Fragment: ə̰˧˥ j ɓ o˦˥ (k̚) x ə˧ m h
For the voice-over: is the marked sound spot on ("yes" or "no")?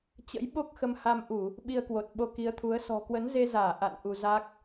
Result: yes